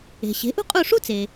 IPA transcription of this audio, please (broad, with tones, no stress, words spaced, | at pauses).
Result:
e̤˩ɕe̤˩˥ʔṳ˥qʼu˦˨ ʂu˥t͡se˩